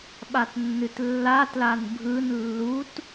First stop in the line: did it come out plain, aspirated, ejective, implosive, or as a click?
implosive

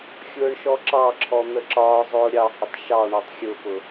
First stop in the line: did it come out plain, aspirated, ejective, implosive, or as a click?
click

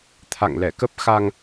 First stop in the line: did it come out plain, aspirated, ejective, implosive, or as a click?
aspirated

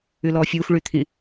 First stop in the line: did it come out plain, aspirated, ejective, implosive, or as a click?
aspirated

